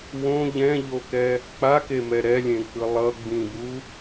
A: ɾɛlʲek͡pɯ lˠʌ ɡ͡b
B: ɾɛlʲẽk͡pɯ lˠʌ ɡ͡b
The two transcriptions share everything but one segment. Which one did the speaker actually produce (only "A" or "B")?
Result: B